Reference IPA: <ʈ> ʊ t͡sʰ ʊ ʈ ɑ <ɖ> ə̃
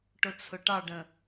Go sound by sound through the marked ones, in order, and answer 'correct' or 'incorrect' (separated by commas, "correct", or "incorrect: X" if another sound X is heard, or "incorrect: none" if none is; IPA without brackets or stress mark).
correct, correct